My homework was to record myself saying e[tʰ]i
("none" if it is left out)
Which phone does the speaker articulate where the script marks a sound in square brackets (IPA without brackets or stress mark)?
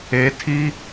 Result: tʰ